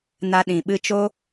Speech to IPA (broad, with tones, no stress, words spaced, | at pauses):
na˧ɗĩ˨ ɓɨ˧t͡ʃo˦